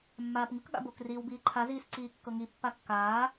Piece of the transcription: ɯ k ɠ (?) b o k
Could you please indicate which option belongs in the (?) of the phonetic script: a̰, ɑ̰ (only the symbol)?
a̰